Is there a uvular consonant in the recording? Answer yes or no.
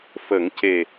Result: no